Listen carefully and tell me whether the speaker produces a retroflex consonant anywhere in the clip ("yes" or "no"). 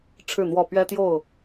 yes